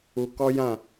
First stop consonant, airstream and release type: plain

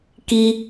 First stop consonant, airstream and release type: plain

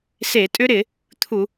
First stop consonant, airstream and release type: ejective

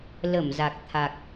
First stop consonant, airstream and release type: plain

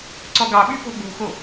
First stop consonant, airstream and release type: click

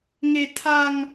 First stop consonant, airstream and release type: aspirated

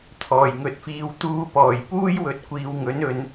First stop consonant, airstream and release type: aspirated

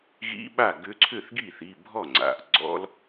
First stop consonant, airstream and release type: implosive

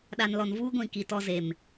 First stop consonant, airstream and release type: implosive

